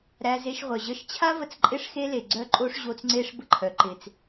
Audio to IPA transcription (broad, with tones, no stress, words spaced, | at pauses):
ɾæ˧ze˧ʃ ʁʷœ˨ʑə˦ʃ t͡ɕʰa˦və˧t͡sǃʼɪ˦˨ʂ xe˦le˨ ɡ͡ǀœ˦ǃʼo˦ʂ ʑo˧t͡s ŋ͡ǀe˦ʂ bə˦ǃʰœ˨ ǃɪ˨t͡s